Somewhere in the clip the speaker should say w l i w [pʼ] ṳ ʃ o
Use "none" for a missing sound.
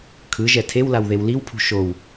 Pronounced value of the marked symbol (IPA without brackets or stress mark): pʰ